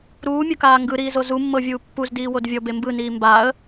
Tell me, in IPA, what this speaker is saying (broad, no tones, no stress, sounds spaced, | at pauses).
ɾ uː mʲ ɤ k aː ŋ ɡ ɯ ɾ iː z o z u mː ɤ vʲ uː pː u z d iː w o d vʲ ɔ b e m b ɯ n iː m b a ə̯